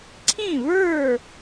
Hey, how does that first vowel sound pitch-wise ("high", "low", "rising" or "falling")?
falling